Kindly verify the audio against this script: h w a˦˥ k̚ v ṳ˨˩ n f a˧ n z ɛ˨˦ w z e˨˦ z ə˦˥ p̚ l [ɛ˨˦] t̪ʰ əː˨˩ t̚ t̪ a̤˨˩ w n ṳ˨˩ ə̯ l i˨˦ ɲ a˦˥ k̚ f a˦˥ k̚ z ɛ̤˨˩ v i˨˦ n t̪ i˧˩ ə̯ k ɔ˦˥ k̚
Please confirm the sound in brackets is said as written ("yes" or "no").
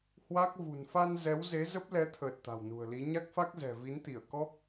yes